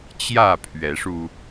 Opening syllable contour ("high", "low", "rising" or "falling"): falling